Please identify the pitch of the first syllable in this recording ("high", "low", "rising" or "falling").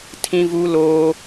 high